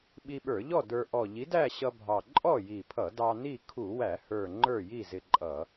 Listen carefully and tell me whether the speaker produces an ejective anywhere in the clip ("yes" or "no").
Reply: yes